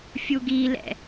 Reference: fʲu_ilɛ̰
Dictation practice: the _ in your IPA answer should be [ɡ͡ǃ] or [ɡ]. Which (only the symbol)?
ɡ